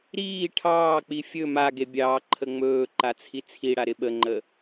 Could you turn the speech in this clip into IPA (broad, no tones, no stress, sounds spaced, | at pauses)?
ɾ iː ʈʰ ɑː k͡p i fʲ ɵ m a ɡ e bʲ ɑː ǃʰ ə ŋ͡m ɵː ǃ a t͡sʰ i t͡sʰ i ɽ a ɾ ɪ ɓ ə ŋ͡ǃ ə